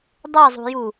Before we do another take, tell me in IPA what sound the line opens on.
dˤ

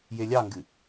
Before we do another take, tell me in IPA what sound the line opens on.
j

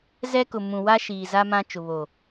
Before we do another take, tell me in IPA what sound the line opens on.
z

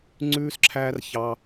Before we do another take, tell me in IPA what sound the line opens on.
ŋ͡ǀ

